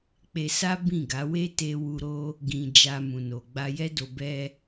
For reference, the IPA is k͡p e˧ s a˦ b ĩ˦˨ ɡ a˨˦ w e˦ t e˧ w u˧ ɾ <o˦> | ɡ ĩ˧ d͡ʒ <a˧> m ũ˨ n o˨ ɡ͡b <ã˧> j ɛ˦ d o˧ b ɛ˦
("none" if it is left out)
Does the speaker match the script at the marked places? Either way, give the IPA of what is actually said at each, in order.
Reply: o˦, a˧, a˧

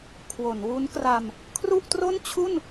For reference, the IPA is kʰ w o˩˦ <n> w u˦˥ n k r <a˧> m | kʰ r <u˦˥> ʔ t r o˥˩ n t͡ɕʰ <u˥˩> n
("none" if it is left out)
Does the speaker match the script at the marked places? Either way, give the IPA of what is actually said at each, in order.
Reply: n, a˧, u˥˩, u˥˩

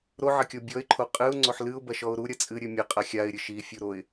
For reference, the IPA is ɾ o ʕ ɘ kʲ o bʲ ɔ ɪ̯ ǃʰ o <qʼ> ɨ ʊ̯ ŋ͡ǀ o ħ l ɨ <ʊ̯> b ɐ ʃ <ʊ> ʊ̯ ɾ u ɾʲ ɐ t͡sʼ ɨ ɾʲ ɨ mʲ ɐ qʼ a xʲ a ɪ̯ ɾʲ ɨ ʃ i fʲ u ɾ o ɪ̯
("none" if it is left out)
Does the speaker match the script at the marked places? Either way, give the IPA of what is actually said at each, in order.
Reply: qʼ, ʊ̯, ɔ

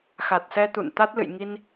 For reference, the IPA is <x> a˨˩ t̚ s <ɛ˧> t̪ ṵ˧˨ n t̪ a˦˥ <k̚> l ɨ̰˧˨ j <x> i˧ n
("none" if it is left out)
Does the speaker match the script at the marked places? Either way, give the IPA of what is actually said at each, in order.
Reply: x, ɛ˧, t̚, ŋ

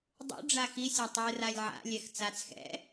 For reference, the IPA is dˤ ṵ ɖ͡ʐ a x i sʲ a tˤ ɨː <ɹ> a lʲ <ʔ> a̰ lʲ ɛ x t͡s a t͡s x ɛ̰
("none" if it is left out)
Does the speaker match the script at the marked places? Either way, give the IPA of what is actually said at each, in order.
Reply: r, ʕ

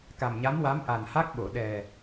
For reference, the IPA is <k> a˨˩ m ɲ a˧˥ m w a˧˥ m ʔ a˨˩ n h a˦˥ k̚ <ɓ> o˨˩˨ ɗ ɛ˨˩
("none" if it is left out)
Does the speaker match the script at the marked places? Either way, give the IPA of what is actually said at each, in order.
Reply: k, ɓ

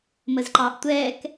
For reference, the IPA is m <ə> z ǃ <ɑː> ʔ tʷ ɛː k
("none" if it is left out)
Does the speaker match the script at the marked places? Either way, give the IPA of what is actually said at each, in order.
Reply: ə, ɑː

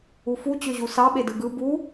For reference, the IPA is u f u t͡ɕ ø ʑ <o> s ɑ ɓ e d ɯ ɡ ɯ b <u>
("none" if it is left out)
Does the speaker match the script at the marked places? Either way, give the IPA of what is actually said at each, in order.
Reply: u, u

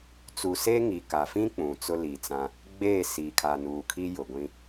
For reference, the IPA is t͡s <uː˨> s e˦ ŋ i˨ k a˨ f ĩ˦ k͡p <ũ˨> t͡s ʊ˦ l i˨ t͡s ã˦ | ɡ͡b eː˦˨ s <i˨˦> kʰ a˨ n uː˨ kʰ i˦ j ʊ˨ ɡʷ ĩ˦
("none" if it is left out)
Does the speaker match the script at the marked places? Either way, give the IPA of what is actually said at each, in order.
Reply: u˨, ũ˨, i˨

